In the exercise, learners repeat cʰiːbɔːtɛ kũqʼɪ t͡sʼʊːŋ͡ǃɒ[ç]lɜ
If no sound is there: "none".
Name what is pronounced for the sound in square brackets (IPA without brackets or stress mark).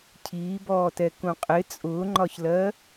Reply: ç